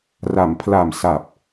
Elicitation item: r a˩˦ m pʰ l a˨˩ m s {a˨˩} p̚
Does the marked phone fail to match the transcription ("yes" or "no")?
no